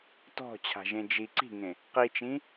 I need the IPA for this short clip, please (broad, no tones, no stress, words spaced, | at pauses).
tɔ̤t͡ɕʰa̤ʒẽ d͡ʒi ǀi̤ŋẽ | qit͡ʃĩ